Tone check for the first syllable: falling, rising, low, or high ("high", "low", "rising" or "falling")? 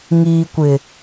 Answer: low